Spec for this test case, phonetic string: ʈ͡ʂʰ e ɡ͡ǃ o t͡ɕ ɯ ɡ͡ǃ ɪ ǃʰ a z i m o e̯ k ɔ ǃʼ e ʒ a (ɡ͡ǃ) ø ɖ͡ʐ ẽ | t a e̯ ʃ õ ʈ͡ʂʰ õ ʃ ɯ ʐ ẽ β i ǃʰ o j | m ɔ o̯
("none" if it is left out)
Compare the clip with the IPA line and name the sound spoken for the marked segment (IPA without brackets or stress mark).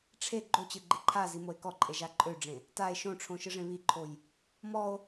ǃʼ